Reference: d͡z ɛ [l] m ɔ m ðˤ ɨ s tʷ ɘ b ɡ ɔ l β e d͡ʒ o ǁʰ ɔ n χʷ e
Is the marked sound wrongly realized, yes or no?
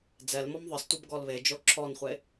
no